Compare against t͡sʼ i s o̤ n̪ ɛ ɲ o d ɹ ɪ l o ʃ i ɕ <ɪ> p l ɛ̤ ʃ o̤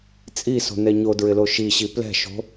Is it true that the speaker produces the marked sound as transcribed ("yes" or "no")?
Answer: no